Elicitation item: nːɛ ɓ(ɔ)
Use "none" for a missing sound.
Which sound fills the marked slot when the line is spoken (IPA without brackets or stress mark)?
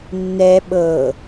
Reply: ɤ